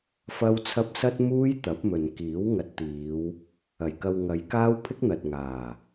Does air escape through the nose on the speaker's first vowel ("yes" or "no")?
no